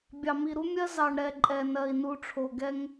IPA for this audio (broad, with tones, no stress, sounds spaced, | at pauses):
bʲ ɑ˨ m i˨ ɾ u˦ mʲ ɜ˦ z ɑ˨ ɳ ɾ ɛ˨ ǃʼ ɛ˨ n ɜ˨ i̯ n u˨ ʈ͡ʂʰ o˨ ɡ ɛ˦ ŋ